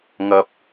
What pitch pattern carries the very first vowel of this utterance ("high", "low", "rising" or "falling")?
low